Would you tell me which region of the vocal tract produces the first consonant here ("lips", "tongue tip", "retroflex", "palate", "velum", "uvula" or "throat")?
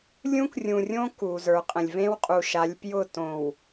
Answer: tongue tip